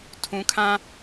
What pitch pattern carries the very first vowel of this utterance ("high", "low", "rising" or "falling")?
low